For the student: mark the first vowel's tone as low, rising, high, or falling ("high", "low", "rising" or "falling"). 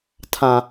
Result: low